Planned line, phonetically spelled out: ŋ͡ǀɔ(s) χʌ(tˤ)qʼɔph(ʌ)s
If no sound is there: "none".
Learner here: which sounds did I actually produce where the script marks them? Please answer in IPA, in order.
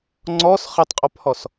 s, tˤ, ɔ

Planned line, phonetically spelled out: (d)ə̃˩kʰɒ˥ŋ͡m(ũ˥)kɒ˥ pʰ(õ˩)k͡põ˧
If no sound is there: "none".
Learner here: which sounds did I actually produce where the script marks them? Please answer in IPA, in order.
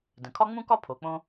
d, ũ˥, o˩

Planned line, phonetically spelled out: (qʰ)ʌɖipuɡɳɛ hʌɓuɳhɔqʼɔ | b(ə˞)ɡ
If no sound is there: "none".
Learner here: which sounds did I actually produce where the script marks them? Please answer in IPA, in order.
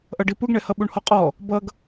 ʔ, ʌ

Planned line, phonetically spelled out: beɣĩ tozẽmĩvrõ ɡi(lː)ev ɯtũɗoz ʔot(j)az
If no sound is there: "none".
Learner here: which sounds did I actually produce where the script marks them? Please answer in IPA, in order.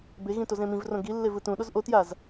lː, j

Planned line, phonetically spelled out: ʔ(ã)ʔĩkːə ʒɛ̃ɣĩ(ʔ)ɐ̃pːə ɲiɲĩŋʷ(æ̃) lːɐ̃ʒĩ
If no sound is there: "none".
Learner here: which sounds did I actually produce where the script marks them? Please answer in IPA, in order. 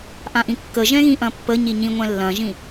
ã, ʔ, ɛ̃

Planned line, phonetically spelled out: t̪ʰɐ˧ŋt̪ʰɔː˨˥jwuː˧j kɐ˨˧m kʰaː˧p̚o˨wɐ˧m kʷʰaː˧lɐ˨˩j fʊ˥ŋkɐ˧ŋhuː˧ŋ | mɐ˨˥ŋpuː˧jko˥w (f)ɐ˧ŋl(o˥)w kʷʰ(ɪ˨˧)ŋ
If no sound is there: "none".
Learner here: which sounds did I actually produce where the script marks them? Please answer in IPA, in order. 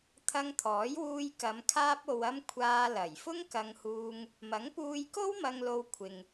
m, o˧, ɪ˨

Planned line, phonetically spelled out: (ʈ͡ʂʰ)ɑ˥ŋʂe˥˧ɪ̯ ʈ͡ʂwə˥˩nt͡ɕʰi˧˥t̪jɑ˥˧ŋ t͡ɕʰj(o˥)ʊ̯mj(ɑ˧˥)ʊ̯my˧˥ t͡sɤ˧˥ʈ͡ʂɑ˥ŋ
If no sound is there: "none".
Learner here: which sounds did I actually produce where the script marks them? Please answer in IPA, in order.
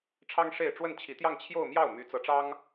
ʈ͡ʂʰ, o˥˧, ɑ˥˩

